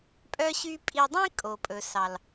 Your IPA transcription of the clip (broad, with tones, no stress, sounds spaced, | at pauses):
pʼ œ˦ ɕ y˦ pʼ i˧ dˤ ĩ˦ kʼ o˨ pʼ ɵ˨ s ɑ˨ l